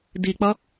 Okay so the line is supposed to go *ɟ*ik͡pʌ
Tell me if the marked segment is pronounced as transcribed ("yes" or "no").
no